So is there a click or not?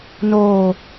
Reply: no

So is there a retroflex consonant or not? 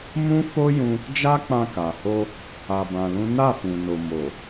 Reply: no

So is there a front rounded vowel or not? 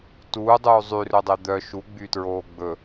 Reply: yes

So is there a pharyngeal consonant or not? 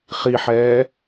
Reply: yes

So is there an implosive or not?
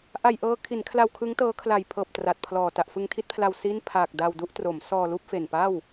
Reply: no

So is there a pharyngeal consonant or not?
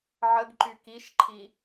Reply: yes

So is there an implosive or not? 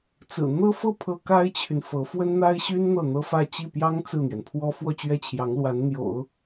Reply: no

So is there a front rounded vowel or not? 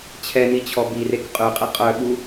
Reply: yes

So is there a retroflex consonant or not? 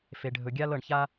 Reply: yes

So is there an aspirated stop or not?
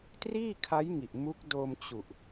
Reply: yes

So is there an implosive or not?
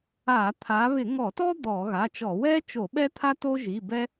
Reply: yes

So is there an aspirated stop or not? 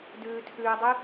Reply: yes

